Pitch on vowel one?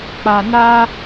low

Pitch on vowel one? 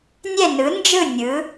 falling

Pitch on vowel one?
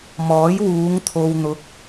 rising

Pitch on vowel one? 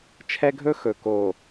high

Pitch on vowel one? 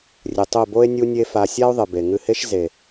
low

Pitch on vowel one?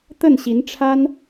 falling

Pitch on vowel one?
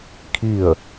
falling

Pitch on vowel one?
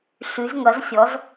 rising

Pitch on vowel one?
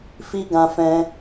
high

